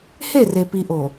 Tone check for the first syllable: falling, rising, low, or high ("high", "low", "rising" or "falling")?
falling